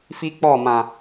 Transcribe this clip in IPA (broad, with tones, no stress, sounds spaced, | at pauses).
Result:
f i˦ k͡p ɔ˦˨ m ã˨